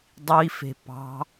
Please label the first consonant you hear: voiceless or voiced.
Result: voiced